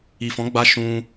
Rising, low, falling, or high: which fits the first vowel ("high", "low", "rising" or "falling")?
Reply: low